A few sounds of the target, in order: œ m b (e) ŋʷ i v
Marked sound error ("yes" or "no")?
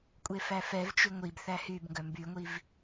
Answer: yes